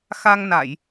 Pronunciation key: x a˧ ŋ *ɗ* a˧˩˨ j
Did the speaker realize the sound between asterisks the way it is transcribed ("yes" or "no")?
no